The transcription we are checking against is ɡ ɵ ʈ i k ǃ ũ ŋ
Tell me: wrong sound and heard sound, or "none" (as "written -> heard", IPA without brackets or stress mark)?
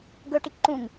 none